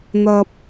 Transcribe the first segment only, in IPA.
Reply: n̪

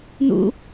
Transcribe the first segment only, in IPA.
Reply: n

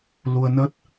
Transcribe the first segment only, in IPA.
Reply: l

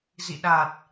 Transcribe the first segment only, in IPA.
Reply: z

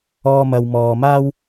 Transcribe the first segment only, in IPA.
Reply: ɔː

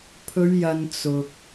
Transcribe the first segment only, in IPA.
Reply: pʰ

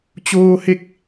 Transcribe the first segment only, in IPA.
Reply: t͡ɕ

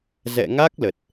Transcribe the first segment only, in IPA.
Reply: z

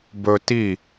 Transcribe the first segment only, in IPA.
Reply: b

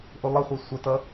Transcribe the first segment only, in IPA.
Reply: ʔ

